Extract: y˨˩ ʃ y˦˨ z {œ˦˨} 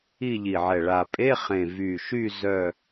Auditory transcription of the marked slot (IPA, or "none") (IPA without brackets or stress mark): œ˦˨